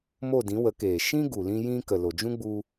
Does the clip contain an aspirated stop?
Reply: no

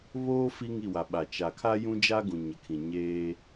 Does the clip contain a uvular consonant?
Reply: no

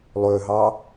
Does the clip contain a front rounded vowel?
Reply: yes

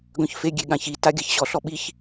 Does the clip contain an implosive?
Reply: yes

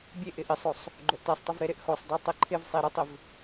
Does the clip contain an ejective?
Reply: no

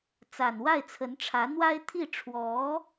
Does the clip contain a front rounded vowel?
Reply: no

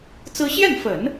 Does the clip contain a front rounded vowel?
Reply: no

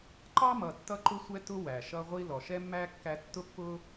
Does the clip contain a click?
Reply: yes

